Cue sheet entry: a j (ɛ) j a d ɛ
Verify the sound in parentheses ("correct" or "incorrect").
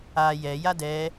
correct